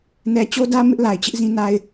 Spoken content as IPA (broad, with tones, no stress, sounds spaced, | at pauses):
n ɛ˨ t͡ɕ o˦ d ä˦ m ɪ˦ ʔ l a˨ ɪ̯ t͡ɕ ɪ˦ ʔ z ĩ˦ n a˦ ɪ̯